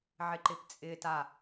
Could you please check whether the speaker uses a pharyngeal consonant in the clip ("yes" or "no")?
yes